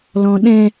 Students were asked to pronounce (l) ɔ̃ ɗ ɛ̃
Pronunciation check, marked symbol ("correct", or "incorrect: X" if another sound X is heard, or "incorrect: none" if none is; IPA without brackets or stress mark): correct